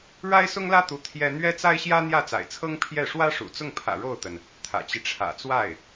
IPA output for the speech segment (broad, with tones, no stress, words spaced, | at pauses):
ɻa˥ɪ̯sʊ˥ŋlä˥t̪u˧˥ t̪ʰjɛ˥ n̪ɥɛ˥t͡sa˥ɪ̯ɕjä˥ n̪jä˥˩t͡sa̰˨˩ɪ̯t͡sʰɤ˥ŋ pʰjɛ˥˩ ʂwä˥ʂṵ˨˩ t͡sʊ˥˩ŋpʰä̰˨˩ ɻo˥˩ʊ̯t̪ə˩n | t̪ʰä̰˨˩t͡ɕi˦ʈ͡ʂʰä̰˨˩t͡swa˥˩ɪ̯